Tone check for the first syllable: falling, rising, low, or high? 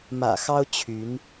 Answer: low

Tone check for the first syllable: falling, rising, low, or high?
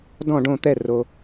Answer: falling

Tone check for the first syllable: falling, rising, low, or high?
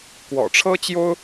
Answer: low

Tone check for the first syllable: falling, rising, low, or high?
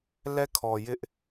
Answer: falling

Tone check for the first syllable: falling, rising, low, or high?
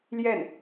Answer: falling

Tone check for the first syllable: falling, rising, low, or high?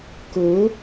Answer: rising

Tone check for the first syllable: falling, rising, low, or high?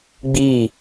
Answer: falling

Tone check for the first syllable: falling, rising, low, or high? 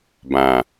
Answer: low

